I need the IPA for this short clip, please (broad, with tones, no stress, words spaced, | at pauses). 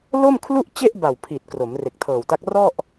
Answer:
lo˥˩mkʰlu˥˩ʔt͡ɕe˥˩ʔba˨˩w pʰi˨˩t̚ kro˩˦mre˨˩k̚tʰɤː˨˩wta˦˥k̚ rɔ˥˩ʔ